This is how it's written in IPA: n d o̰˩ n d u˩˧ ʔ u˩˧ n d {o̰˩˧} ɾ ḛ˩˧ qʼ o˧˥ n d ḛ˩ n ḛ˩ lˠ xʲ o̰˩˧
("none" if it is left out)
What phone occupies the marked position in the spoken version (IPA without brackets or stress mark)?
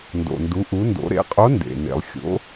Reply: o̰˩˧